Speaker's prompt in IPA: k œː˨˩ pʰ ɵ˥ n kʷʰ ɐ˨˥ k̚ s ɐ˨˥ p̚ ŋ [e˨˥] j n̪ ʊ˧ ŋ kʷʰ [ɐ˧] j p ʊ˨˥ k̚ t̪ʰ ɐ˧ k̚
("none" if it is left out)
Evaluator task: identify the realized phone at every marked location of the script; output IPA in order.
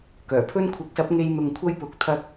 e˥, ɐ˥

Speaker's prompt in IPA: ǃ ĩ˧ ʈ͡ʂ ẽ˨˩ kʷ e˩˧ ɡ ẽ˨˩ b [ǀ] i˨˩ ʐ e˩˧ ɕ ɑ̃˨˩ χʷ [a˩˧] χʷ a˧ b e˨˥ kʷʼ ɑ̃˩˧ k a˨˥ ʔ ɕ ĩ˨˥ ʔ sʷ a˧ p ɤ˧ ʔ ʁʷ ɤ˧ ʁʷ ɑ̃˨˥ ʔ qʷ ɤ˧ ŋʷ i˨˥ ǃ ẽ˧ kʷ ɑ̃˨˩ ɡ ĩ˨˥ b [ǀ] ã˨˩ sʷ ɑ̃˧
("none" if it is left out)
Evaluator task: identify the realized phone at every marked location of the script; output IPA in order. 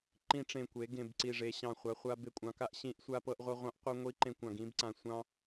ǀ, a˩˧, ǀ

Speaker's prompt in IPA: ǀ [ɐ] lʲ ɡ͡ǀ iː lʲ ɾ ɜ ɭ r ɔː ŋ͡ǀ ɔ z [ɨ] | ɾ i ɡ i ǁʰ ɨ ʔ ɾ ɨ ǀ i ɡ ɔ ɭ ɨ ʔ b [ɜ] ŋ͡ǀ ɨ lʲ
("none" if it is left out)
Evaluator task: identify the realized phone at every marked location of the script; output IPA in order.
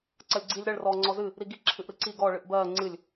ɐ, ɨ, ɜː

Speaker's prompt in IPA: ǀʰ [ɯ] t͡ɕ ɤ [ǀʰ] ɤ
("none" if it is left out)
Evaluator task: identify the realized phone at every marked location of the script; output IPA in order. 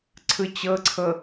ɯ, ǀʰ

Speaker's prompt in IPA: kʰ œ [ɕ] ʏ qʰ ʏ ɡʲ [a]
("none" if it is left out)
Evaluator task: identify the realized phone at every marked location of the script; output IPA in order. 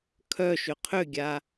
ʃ, a

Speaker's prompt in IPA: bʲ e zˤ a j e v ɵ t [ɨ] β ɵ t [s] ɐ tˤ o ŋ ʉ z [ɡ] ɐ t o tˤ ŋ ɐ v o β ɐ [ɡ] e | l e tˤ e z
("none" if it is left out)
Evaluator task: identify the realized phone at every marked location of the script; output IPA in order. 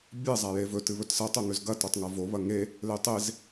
ɨ, s, ɡ, ŋ

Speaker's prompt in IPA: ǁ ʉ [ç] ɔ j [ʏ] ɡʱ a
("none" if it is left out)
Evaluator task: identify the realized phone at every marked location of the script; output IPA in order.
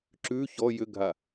ç, ʏ

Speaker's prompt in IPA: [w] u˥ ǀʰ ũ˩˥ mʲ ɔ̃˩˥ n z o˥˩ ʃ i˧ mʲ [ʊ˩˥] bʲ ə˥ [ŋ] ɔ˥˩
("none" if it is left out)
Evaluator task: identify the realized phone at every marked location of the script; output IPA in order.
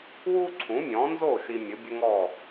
w, ʊ˩˥, ŋ

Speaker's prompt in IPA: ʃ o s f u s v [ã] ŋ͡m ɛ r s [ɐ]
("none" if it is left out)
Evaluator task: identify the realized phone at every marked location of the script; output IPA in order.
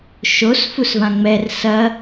ã, ɐ

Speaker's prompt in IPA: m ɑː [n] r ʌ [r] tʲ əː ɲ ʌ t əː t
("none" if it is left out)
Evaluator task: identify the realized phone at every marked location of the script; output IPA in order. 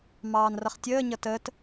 n, χ

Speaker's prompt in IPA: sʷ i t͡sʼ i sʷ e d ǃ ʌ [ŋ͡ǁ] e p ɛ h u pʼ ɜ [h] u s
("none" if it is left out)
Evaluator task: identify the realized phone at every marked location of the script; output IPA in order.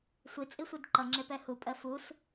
ŋ͡ǁ, f

